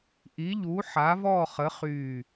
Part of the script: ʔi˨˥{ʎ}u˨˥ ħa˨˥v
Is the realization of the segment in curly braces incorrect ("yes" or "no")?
no